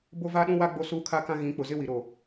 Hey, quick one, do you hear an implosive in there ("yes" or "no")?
yes